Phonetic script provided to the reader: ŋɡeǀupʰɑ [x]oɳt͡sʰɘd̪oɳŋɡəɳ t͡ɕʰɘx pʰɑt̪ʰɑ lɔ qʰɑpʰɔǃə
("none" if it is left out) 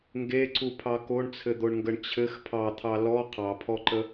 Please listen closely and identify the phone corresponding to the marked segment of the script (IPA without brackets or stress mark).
k